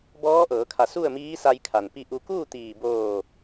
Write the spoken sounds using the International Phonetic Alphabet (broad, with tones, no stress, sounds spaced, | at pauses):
b ɔː˧˥ ʔ ɤː˩˧ kʰ a˧˩ s u˥˨ ə̯ m iː˧˥ s a˧ j kʰ a˩ n p i˧˩ ʔ u˩˧ k uː˥˨ t̪ iː˧˩ b oː˧˩